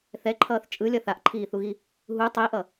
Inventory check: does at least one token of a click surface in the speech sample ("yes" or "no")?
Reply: yes